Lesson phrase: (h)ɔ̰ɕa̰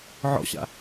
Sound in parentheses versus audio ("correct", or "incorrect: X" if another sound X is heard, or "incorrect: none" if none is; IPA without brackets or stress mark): incorrect: ʕ